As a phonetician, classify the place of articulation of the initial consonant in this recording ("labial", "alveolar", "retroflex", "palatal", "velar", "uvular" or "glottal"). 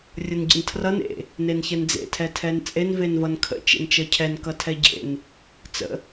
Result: alveolar